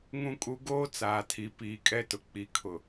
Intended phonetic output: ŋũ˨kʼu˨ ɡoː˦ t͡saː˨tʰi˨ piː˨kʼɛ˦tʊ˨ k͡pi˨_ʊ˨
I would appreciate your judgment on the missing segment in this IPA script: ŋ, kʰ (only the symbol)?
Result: kʰ